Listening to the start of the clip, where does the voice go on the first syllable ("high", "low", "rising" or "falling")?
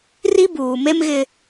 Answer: high